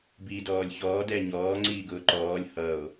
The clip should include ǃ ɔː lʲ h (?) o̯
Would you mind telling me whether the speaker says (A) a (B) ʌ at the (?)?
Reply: B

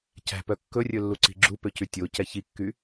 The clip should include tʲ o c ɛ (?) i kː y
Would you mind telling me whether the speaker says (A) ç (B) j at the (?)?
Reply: A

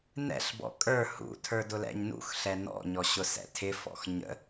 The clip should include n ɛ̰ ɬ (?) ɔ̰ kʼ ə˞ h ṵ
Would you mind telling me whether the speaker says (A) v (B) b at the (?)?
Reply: B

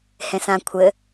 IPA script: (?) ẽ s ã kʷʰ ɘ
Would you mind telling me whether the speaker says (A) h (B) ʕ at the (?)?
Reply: A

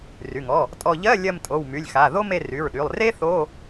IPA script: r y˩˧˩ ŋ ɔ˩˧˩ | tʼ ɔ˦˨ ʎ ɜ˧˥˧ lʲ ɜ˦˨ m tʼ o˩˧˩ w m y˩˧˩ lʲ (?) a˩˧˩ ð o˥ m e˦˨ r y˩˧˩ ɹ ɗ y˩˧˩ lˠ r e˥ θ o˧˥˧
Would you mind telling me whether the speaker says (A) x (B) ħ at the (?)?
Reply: A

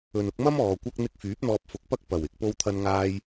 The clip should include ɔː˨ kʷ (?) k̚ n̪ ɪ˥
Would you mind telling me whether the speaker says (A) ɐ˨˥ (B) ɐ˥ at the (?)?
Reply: B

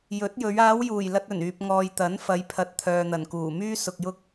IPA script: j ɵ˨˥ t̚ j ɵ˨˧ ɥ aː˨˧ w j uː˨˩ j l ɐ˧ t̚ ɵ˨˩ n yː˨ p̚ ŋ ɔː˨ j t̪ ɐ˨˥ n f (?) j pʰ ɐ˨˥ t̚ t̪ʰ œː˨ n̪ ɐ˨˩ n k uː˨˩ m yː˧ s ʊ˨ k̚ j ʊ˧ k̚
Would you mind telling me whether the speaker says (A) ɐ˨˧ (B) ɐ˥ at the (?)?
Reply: A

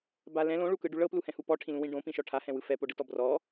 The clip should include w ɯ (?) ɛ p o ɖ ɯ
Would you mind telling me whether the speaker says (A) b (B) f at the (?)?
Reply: B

